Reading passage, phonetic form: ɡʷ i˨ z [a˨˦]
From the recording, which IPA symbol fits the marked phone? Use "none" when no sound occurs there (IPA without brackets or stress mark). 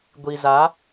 a˨˦